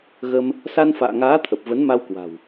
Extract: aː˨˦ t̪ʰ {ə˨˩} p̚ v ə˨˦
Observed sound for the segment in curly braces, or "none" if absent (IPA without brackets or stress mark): ə˨˩